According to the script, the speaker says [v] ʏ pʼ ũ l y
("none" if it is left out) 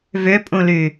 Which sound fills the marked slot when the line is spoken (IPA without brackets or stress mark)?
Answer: v